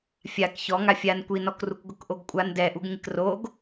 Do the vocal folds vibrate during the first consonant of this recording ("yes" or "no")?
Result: no